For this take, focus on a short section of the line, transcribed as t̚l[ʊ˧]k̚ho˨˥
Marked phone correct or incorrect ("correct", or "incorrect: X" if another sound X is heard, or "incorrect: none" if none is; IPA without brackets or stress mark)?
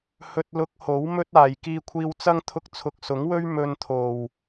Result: correct